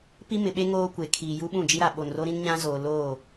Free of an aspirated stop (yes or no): no